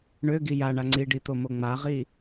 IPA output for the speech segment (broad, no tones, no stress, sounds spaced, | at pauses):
ɳ ø ɡ i j a ɳ a ŋ͡ǀ i ɖ i t̪ o m o ŋ͡m a ʁ i